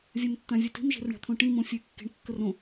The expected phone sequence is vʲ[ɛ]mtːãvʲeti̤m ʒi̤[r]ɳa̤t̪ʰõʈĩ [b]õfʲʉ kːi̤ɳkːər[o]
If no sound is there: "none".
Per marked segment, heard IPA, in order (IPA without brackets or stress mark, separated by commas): ɛ, r, m, õ